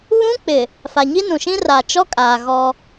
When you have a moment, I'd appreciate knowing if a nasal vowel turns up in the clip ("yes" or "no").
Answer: yes